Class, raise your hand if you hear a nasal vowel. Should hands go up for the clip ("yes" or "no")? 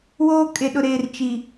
no